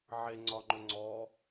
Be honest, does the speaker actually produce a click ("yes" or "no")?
yes